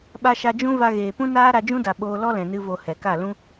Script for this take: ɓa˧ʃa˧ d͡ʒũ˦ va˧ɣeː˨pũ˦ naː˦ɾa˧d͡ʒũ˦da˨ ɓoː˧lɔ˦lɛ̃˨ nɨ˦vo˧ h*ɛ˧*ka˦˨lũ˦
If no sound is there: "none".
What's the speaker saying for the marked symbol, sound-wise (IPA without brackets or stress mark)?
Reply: ɛ˨